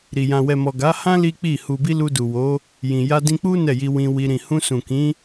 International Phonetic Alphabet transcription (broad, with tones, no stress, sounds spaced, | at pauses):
ɾ i˨ j ã˨ w ɛ˨ m ɔ˨ ɡ a˨˦ h ã˦ l i˦ k͡p i˦˨ h u˨ b i˧ l u˧ d u˨ w o˨˦ | j ĩ˨ j a˧ d ĩ˧ k͡p u˦ n ɛ˦˨ j i˧ w ĩ˧ w i˧ ɾ ĩ˨ h ũ˧ s ũ˨ k ĩ˨˦